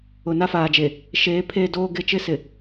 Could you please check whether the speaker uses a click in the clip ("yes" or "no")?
no